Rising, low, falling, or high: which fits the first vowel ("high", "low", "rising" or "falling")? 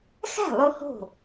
falling